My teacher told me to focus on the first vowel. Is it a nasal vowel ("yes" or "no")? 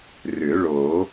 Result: no